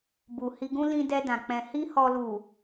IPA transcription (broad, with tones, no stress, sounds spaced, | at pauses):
b u˨ h i˧ ɡ ũ˦ l ĩ˧ d ɛ˧ d ã˨ k͡p ɛ̃˧ h i˦ h ɔ˧ l u˨